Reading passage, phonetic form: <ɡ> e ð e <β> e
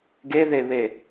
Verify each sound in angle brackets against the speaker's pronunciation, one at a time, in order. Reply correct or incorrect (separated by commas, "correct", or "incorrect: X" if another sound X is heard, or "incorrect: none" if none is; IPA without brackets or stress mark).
correct, correct